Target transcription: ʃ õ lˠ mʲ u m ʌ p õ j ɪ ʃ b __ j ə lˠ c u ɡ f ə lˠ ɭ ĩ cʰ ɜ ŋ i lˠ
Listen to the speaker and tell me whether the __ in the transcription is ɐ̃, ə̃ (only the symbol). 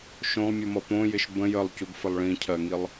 ə̃